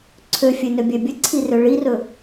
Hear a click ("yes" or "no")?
yes